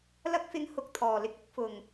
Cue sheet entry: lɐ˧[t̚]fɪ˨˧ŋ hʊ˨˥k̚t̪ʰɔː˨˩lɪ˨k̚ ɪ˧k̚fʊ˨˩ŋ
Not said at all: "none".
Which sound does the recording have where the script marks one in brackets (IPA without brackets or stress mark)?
k̚